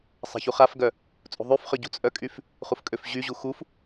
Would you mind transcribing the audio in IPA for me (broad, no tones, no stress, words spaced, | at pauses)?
sˤa̤çuχafɡœ | t͡sʼṳðˤyfχœ ɟṳt͡sʼœkʼyf | χufkʼøfʑyʑu xuf